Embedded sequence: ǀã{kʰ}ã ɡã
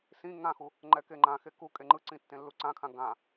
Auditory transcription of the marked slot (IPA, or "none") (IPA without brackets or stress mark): kʰ